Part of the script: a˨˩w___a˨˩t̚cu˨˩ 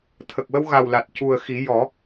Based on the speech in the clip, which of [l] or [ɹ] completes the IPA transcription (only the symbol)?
l